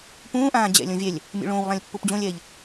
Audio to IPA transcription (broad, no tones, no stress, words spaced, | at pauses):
pũːʔãː d͡ʑɛ̰lʲõvʲɛlʲ | mʲṵɭõːwlˠãlʲ pːupd͡ʑõlʲɛːʎ